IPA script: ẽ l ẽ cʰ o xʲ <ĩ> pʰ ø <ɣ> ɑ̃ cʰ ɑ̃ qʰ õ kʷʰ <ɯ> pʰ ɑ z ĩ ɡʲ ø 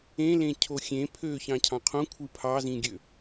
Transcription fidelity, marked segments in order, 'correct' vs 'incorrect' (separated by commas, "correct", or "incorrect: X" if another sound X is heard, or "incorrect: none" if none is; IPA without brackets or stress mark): incorrect: ẽ, incorrect: ç, correct